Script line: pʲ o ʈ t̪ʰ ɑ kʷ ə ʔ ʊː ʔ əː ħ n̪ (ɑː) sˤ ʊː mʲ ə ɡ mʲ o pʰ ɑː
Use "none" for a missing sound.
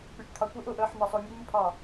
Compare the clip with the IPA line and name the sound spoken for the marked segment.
ɑ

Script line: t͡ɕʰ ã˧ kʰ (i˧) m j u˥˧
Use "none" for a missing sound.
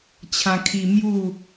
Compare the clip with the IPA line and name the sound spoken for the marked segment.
i˧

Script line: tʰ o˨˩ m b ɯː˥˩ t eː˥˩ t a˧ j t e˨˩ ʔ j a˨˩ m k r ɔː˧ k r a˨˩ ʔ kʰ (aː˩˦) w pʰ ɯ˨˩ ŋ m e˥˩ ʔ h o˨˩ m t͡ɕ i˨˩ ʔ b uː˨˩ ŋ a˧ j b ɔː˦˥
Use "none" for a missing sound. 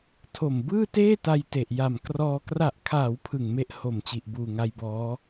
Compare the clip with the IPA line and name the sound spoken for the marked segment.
aː˩˦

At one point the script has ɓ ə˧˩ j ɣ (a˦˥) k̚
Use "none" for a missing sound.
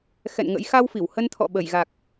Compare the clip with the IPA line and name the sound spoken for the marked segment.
a˨˩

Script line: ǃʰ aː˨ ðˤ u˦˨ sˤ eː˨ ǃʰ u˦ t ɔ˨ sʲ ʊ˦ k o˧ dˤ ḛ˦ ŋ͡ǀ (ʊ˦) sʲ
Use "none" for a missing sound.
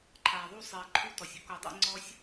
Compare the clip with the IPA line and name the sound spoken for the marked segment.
ɔ˦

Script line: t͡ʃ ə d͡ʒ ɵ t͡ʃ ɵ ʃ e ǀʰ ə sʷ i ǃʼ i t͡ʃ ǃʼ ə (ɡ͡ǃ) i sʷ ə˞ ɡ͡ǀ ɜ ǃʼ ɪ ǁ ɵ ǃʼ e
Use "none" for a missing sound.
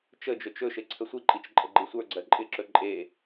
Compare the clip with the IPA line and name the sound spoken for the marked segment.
ɡ͡ǃ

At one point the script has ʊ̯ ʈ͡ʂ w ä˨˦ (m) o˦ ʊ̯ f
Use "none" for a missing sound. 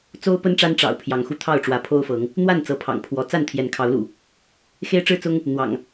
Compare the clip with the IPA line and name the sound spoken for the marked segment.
pʰ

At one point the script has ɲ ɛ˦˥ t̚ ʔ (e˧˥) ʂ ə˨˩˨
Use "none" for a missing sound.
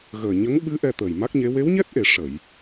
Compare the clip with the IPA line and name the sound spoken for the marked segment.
e˨˩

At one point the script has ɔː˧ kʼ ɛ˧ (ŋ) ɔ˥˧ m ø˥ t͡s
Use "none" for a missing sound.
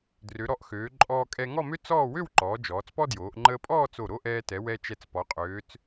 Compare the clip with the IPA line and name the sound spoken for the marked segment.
ŋ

